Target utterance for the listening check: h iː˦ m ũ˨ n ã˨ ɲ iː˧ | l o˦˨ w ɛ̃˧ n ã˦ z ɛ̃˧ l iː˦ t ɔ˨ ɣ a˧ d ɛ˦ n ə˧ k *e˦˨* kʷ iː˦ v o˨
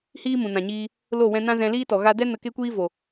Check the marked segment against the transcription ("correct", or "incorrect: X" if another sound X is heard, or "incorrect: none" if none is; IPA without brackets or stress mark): incorrect: e˦